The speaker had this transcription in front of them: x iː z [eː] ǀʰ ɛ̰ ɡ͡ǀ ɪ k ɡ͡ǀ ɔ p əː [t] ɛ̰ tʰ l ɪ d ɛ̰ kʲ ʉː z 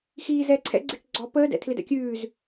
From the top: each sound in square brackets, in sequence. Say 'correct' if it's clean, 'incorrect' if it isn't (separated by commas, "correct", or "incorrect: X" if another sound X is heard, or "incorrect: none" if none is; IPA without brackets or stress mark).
incorrect: ɛː, incorrect: d